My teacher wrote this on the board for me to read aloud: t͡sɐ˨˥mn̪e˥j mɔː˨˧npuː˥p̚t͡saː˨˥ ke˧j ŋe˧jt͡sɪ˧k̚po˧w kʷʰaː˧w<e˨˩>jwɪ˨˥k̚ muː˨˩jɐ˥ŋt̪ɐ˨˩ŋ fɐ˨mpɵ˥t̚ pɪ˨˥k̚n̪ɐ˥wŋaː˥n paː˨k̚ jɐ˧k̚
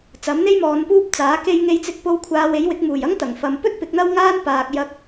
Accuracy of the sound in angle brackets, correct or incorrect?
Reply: incorrect